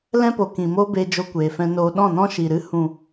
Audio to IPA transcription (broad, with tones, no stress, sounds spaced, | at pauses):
l ɛ̃˦ p o˨ k ĩ˨ m o˦ b e˧ d͡ʒ o˧ kʷ eː˨ f ɛ̃˧ n oː˧ ɗ ɔ̃˦˨ n ɔ̃˦ ʃ i˨ ɾ ɨ˦ h ũ˨